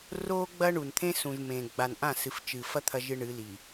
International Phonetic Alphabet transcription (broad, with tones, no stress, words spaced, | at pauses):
roː˦ ɡ͡bɐ˦ɳu˨n t̪ʰẽ˦sũ˨ʒmẽ˨ ɡ͡ba˨nʔã˦˨ sɨ˨ft͡ʃɨ˨fɐ˦ t̪ʰɐ˦ʒɨ˦ɳɨ˨˦li˨